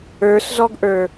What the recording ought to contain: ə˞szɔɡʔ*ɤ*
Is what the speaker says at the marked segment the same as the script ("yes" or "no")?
no